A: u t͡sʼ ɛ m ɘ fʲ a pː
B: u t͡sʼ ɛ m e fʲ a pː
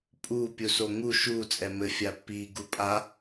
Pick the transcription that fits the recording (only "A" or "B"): A